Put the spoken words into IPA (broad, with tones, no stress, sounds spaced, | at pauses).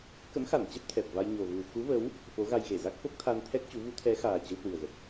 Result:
k ə̰˧˥ m x a˧˩ n t͡ɕ ɛ˦˥ p̚ t̪ʰ ɛ˨˩ p̚ v a˧ j ɲ o˨˩ v u˨˩ x u˨˦ v ə˨˦ w | f o˨˦ ɣ a˧ j ɣ e˧˩ z a˦˥ k̚ f o˦˥ k̚ t̪ʰ a˧ n t̪ʰ ɛ˦˥ k̚ t͡ɕ u˨˦ v u˨˦ t̪ʰ ɛ˨˦ x aː˨˩ t͡ɕ ə˨˦ w h w ɨ˨˩ ə̯ ɣ ə˨˩ t̚